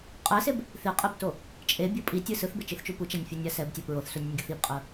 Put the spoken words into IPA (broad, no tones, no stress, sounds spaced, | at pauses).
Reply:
qʼ ɛ s e b | θ i qʼ i b t o | t͡ʃʼ e bʲ o pʼ i tʲ ɯ s ɯ θ b e t͡ʃ ɯ θ t͡ʃ u p u t͡ʃ a nʲ fʲ o nʲ a s ɛ b tʲ a p ɹ o θ s u nʲ ɛ nʲ ɡʲ ʌ θ i b qʼ ɯ